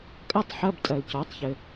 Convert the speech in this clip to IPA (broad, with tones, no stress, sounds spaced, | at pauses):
kʼ ɐ˥ tˤ ħ ɐ˧˥˧ b tʼ ɐ˨ l c ɔ˩˥ tˤ ç ɘ˨